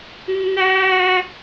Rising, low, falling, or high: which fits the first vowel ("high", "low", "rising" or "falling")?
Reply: high